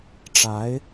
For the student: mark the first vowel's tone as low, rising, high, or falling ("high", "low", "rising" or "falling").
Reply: rising